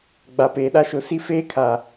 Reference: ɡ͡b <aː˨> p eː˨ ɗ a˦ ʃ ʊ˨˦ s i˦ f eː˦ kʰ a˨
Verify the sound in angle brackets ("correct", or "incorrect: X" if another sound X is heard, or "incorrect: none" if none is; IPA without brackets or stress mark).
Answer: incorrect: a˨